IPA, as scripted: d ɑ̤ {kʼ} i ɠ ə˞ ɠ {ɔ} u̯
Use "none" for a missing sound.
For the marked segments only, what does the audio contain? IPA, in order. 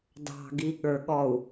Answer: ɡ, ɔ

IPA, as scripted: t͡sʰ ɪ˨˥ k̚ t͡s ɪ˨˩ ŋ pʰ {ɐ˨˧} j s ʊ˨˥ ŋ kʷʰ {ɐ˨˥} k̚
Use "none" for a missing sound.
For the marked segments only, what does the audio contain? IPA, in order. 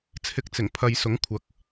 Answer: ɐ˨˧, ɐ˨˥

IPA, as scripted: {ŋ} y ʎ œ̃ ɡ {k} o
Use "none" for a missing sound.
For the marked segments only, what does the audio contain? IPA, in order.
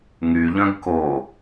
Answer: ŋ, k

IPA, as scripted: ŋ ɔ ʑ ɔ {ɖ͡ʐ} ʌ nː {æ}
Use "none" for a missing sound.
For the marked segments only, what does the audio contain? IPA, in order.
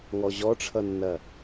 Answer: ʈ͡ʂʰ, ɐ

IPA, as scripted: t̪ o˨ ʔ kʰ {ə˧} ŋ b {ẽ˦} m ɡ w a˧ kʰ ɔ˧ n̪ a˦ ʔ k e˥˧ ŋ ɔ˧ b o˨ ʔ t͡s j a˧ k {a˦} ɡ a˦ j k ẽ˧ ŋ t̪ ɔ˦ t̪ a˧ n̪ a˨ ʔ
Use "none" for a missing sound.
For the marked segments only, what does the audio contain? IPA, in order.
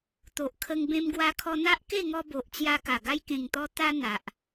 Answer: ə˧, ẽ˧, a˨˩

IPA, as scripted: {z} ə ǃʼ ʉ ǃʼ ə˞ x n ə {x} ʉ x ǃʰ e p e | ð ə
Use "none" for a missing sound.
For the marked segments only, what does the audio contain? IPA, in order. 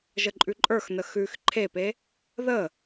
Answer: ʒ, x

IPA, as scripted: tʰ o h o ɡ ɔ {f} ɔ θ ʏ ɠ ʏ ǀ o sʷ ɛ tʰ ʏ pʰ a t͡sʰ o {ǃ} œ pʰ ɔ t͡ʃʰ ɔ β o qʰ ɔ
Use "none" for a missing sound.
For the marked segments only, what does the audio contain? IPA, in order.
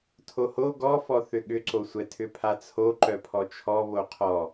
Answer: f, ǃ

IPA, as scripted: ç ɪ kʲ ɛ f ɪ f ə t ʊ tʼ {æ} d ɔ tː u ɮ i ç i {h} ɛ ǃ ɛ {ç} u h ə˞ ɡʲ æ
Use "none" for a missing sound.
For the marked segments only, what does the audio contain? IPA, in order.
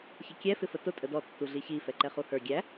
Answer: ə, f, χ

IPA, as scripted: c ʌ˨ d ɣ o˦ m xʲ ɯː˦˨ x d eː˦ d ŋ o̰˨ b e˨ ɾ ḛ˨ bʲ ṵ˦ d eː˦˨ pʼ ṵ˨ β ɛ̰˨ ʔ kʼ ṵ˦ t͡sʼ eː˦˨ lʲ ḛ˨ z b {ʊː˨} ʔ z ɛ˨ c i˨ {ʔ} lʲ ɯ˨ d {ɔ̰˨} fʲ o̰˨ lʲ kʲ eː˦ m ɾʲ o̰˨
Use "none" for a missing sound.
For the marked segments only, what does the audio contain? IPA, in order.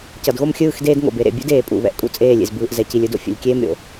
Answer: ɯː˨, none, o̰˨

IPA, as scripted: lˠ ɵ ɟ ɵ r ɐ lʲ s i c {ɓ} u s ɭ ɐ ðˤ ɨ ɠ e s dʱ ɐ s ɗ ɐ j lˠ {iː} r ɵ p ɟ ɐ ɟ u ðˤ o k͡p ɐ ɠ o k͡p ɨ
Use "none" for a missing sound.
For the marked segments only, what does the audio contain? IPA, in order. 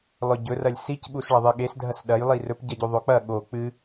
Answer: ɓ, i

